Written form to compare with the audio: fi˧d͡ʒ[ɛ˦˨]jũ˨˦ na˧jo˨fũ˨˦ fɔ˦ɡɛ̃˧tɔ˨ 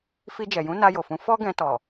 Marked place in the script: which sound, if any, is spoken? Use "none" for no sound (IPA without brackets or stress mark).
ɛ˨